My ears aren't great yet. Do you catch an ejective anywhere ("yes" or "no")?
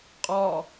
yes